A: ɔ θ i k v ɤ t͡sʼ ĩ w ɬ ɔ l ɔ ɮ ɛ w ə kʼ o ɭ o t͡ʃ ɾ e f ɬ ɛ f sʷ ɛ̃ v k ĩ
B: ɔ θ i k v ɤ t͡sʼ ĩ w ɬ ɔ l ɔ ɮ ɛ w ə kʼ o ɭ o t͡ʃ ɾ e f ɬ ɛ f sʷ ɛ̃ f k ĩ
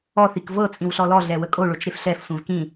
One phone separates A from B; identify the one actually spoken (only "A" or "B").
A